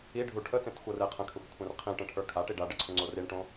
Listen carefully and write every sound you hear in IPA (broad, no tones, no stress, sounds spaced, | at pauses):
i ɖʱ u ʈʰ ə t ẽ t xʷ ɤ r e qʰ ə̃ kʰ ə xʷ kʷʰ ẽ r qʰ ĩ ʈ ə̃ ʈʰ ə˞ kʰ a ʈ i ɖ a ɖ ə ǀʰ ə̃ ŋ͡ǀ o r i ɳ ʈ õ